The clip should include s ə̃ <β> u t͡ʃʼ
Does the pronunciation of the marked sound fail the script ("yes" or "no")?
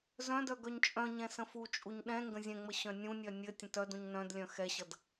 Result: yes